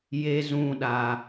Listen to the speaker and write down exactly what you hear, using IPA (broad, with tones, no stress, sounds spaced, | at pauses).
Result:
j e˦ z ũ˦ ɗ a˦